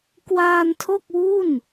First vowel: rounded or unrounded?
unrounded